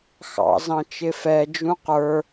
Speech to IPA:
xɑ̰zɑ̃ t͡ʃɪfɛd͡ʒũ qə˞

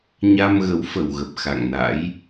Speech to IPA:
ɲa˧mɣə˨˦w fə˨˩wɣə˨˩p̚ xa̰˧˨ŋna̰˧˥j

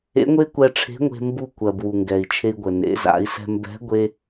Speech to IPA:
ḛ˧˥ŋʷe˥kʷɛ˧ʈ͡ʂʰe̤˧˥ ŋʷe̤˧mbu˧ kʷɜ˩bwu˩ŋɡɛ˩i̯ t͡ʃʰe˧i̯ɡʷə˩ nḛ˩˧za̰˩˧i̯sɛ̤˧mbɛ̤˧˥ ɡʷe˥

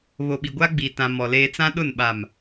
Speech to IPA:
βo˨ɓi˨ɡʷa˦ɡ͡bi˨ tã˨mɔ˨ leː˦ t͡sã˦ɗʊ˦˨n ɓa˨m

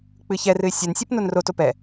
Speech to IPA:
k͡pɨçɛrɨɪ̯ sʲɛnsʲɛp nonroto pɛ

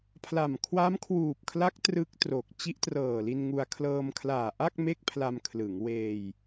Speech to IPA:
pʰla˨˩m kʰwa˦˥mkʰwuː˨˩p̚kʰla˦˥k̚ trɯ˦˥k̚tro˨˩k̚ t͡ɕi˦˥ʔtrɤː˨˩li˧nŋu˧a̯ kʰlɤː˧mkʰlaː˨˩ʔa˥˩k̚ me˥˩k̚pʰla˧mkʰlɯ˩˦ŋ weː˧j

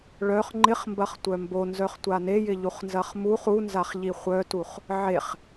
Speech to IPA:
ɭœχ ŋ͡ǃɪχmbɐχtʷœ mbonzœχtʷa nejɪʎuχnzɐχ muχ unzaχʎi χʷœtuχ | ʕeχ

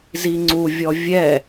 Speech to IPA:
ziŋ͡ǀuvʲɔ vʲɛ

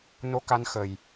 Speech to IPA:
no˧˥ka˧nxə˨˩j

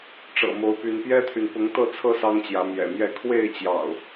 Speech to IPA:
ʈ͡ʂɤ̰˨˩mo˨˦ʊ̯py˨˦n pjɛ˦t̪ʰy˨n pʊ˨˦ŋt̪ɤ˥˨t͡sʰɤ˦ sɑ˦ŋt͡ɕjä˨˦ mjɛ̰˨˩mjɛ˥˨ kʰwe˥˨ɪ̯t͡ɕjɑ̰˨˩ʊ̯

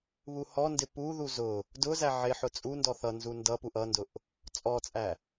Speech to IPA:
βuhɔndɪ puðu zʊ | dʊzæ ʕɪħʊ t͡sʼundɔ θʌnzu ndʌ puʔʌndʊʔ | t͡sʼɔt͡sʼæ

